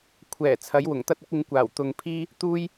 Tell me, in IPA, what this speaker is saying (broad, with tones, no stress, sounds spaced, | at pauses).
kʷʰ ɛː˨˩ t͡sʰ ɐ˨˥ j w ʊ˨˩ ŋ t̪ ɐ˥ t̚ ʊ˥ k̚ ɪ˨˧ ŋ kʷ aː˨˩ w t̪ ʊ˨ ŋ pʰ iː˥ | t̪ uː˥ j